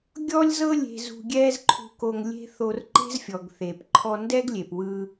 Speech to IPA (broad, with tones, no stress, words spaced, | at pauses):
ɡʲɔ˥lʲzɤ˥lʲe̤˧zṳ˧ ɡʲɛː˥zǃʰṳ˧ko˧ŋ lʲe̤˥ θo˧rǃe̤˥zfʲɔ˩ɡ θe˩p ǃʰɔ˧ndɛ˥ɡlʲe˩pwɯ˧